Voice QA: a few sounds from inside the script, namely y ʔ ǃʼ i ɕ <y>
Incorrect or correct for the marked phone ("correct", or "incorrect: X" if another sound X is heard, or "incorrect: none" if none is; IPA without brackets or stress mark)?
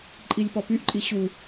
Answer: incorrect: u